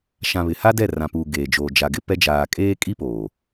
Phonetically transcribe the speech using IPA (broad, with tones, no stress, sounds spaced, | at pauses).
ʃ ã˨ β ɪ˨ h a˦ d ɛ˦˨ r ã˨ p uː˨ ɡ eː˨ d͡ʒ oː˨ d͡ʒ a˨ ɡ ɪ˦ p ɛ˦ d͡ʒ aː˨ kʼ eː˦ kʼ i˦ p oː˨